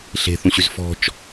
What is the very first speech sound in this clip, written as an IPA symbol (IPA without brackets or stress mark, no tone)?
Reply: ɬ